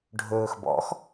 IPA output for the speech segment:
ɖʱ ɵː x b ɔ̰ x

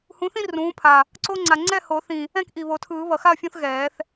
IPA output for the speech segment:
h ũ˩˥ θ ĩ˦ r ũː˩˥ pʰ a˨˩ | ǀ o˦ ŋ͡ǀ a˨˩ ŋ͡ǀ ɛ˥˨ h o˨˩˦ θ ĩ˨˩ | ɛ̃˥˨ k ʔ i˨˩ β o˨˩˦ tʰ ɯː˨˩˦ β ʌ˨˩ x a˥˨ ɐ̯ fʲ ũ˦ θ ɣ ɛː˨˩˦ θ

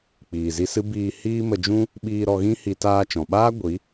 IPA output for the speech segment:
k͡p iː˨ z i˧ s ɨ˦ b iː˧ h iː˦ m ə˧ d͡ʒ ũ˦ | ɓ iː˧ ɾ ɔ˧ ɣ ĩ˦ h i˧ t aː˧ t͡ʃ ɔ̃˨ ɓ aː˦ ɡʷ i˨˦

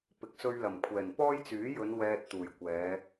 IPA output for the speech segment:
p ɪ˨ k̚ s ɵ˧ ɥ l ɐ˨˩ m kʷʰ ɛː˨˩ n p ɔː˥ j t͡s yː˨˥ j ɵ˨˧ n w ɛː˧ t̚ t̪ uː˨˩ j kʷ ɛː˨˧

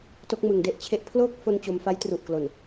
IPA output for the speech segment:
t o˦˥ k̚ m ɯ˨˩ ŋ d e˥˩ ʔ t͡ɕʰ e˥˩ ʔ pʰ l o˥˩ k̚ f o˧ n t͡ɕ o˧ m f a˦˥ j t r u˨˩ ʔ k l o˨˩ n

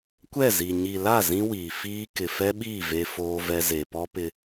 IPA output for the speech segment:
kʷ ɛ˦˨ z i˨ ɲ i˨ l a˦˨ z ĩ˦ w iː˨ f iː˦ k ɪ˨ f ɛ˦ ɓ iː˦˨ v e˦ f oː˦ v ɛ˦ z e˨ p ɔ˦ p ɪ˦

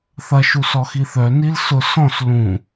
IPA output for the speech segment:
θ ɐ ʃ u s ɔ x i θ œ n i l s ʊ s ɔ̃ s l ũ

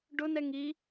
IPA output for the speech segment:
ɖ ʊ n ɛ ŋ i

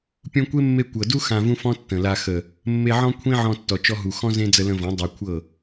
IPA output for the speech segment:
pʲ ũ˧ kʷ e˦ mː e˧ kʷ ɤ˨ d u˦ x ã˧ v ũ˦ f ɔ̃˦ tː ə̃˨ l a˧ x ə˨ | mː e˧ ʕ ɔ̃˦ kʷʰ ĩ˦ ʕ ɔ̃˧ tː ɔ˨ t͡ʃ ɔ˧ ɦ u˨ x ɔ̃˦ z ẽ˦ d͡z ə˧ l ə̃˧ v ɔ̃˨˦ dˤ a˧ kʷʰ ɤ˦˨

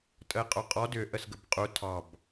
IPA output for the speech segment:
tʼ ə e̯ qʼ o qʼ ɔ d ʏ ʔ ə s ɡ ə b qʼ u tʰ ɑ b

